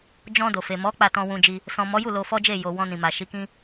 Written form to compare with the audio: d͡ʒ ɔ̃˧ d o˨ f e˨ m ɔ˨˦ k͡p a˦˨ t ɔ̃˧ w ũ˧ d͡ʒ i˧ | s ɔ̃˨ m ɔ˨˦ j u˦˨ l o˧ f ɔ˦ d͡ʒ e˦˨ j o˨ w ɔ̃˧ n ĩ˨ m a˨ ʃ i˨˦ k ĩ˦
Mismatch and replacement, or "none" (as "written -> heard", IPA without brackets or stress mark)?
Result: none